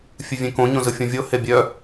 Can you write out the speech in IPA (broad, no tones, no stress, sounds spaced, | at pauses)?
fʲ ɨ vʲ ẽ k õ ɲ õ z ɯ fʲ õ vʲ o h e bʲ œ